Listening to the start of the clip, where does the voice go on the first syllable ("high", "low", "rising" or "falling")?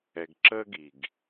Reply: low